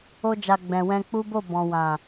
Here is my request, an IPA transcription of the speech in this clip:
o˧d͡ʒa˨ ɡ͡bɛ̃˨wɛ̃˧k͡pu˦bo˦˨ bɔ̃˨wã˨

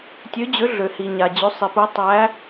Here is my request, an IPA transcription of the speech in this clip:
tʲø˨˥d͡ʑø˨˥ ɮø˩hi˩ɲa˩ d͡ʑʏ˨˥sˤi˩pu˨˥ tˤæ˨˥

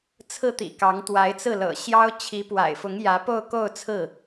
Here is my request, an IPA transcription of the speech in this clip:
t͡sʰɹ̩˥˩ t̪ḭ˨˩ kɑ˧˥ŋ t̪wa˧˥ɪ̯t͡sɹ̩˥˩lɤ̰˨˩ ɕjɑ˥ʊ̯ t͡ɕʰi˧˥pwa̰˨˩ɪ̯fʊ˧˥ŋjä˧˥ po˥˧ʊ̯ko˥˧ʊ̯ t͡sʰɹ̩˥˩

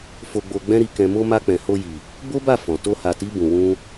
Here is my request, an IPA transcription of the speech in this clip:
fo˧ɡ͡bo˧ɡ͡bɛ̃˦ɾi˧ kɛ̃˧mo˦ ma˧k͡pɛ̃˨ho˧ji˨ | bo˦ba˦˨ fɔ̃˨ to˧ha˨ti˨˦ bũ˧wũ˦

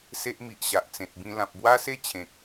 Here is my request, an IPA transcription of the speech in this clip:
se˦ʔmi˨ʔɕa˨ʔ t͡sẽ˨t̚bĩ˧ lã˨p̚bwa˦se˦ t͡ɕʰẽ˨k̚

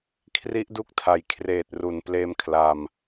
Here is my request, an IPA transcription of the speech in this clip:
kʰri˦˥ʔdu˦˥k̚tʰa˩˦j kʰreː˨˩t̚ru˨˩n pleː˧mkʰla˧m

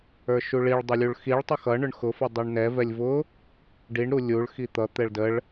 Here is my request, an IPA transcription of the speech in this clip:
ə˞ʃuɭiɭ dˤʌlʲuɭxiɭ tˤʊxʌ ɳʊɳxʊ fʌdˤʌɳnɛ vɛlʲvʊ | ɖiɳ ɾulʲuɭ xit̪ʌ t̪ɛɭdəɭ

